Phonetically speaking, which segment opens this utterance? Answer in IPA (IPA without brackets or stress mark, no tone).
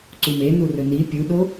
ǀ